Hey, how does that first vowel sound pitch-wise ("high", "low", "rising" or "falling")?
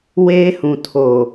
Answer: high